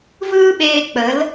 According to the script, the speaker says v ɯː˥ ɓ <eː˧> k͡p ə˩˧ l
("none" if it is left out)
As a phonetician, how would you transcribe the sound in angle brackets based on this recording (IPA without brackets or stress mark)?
eː˧